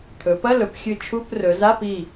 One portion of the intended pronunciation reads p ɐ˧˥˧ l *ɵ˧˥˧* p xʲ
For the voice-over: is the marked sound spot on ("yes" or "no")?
no